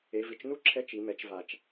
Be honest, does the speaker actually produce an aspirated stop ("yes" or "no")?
yes